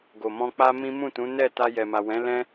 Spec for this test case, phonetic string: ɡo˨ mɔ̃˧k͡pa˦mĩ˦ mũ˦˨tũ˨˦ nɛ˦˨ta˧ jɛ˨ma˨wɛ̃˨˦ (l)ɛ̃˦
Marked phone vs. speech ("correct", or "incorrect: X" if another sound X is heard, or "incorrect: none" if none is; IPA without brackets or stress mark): correct